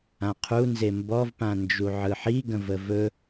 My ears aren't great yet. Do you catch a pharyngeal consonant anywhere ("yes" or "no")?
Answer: yes